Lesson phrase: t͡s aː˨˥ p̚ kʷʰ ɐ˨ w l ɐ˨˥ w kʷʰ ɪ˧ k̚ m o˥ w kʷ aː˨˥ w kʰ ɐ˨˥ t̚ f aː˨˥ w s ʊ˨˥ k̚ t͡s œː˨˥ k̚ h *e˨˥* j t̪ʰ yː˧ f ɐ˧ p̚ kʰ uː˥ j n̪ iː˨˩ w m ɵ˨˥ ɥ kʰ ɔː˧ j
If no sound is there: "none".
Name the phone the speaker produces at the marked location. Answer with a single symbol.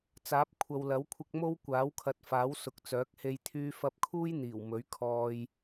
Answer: e˧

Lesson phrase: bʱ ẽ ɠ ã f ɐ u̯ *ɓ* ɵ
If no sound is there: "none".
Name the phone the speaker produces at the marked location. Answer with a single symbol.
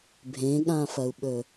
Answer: ɓ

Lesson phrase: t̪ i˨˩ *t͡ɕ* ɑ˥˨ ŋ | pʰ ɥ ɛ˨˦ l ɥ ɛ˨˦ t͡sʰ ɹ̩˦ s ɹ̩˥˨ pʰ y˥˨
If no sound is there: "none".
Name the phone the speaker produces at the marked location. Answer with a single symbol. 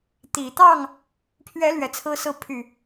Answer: t̪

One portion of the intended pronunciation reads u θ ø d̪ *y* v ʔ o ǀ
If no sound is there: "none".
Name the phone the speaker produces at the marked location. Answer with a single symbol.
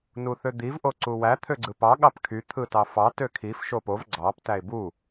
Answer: i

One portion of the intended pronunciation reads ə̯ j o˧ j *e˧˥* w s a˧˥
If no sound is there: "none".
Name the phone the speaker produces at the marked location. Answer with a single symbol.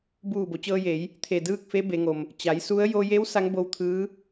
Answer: e˧˥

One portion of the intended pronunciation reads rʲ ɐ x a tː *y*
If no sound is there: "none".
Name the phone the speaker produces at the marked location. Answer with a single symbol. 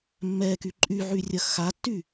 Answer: y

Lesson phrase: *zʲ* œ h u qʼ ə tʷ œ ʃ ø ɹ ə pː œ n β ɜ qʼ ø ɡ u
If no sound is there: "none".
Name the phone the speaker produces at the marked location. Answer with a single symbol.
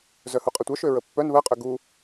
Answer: z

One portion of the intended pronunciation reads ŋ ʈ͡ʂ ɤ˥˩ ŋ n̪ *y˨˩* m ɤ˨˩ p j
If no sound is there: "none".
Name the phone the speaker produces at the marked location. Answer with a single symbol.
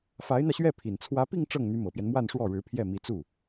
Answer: y˧˥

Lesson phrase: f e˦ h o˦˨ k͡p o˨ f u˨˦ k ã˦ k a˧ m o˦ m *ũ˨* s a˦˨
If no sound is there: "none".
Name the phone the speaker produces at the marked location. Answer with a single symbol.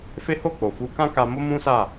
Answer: ũ˦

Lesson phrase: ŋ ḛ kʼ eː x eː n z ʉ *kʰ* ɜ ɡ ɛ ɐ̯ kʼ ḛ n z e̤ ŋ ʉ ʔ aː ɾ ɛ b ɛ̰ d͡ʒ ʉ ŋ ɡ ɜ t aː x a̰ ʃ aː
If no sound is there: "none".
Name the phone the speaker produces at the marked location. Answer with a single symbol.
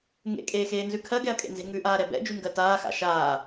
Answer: kʰ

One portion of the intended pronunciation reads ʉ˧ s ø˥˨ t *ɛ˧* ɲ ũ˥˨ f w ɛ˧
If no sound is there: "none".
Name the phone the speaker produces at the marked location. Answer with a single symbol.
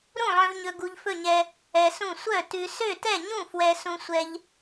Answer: ɛ˥˨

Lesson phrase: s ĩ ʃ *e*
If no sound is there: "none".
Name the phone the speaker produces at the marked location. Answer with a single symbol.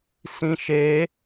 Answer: e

